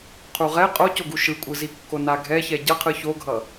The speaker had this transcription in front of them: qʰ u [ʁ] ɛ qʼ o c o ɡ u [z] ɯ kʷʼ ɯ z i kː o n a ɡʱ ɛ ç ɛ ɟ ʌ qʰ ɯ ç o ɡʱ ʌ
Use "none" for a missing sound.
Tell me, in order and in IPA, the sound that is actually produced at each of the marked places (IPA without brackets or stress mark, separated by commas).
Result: ʁ, ʃ